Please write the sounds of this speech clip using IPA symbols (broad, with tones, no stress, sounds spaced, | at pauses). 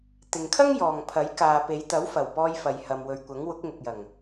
t̪ ɪ˨ ŋ kʰ ɐ˥ ŋ j ɔː˨ ŋ pʰ ɐ˨˥ j k aː˨ p e˨˧ j t̪ ɐ˨˥ w f ɐ˨˩ w p ɔː˧ j f ɐ˨ j h ɐ˨ m w ɵ˨ ɥ kʷ ɐ˨˥ ŋ w ʊ˨˥ k̚ ŋ ʊ˨ k̚ j ɐ˨˩ ŋ